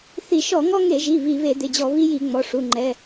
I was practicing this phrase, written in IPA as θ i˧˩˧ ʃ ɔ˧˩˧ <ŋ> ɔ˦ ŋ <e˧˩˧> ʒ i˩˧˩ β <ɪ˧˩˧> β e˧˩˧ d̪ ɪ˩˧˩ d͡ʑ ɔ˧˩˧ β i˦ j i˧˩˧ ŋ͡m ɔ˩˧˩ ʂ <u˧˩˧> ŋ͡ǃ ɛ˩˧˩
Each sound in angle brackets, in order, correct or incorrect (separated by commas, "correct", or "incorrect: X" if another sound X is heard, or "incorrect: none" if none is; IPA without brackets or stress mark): correct, correct, incorrect: i˧˩˧, incorrect: u˩˧˩